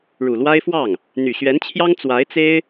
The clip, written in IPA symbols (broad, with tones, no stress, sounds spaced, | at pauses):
ɻ u˨˩ l w a˥ ɪ̯ f w ɑ˥˩ ŋ | n̪ y˨˩ ɕ ɥ ɛ˧˥ n t͡ɕʰ j ɑ˥ ŋ t͡s w a˧˥ ɪ̯ t͡s e˥ ɪ̯